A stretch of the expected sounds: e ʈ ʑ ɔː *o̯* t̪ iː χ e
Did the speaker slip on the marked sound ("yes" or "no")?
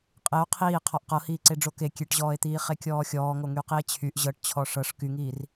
yes